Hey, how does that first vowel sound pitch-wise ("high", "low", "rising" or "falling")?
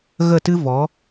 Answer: falling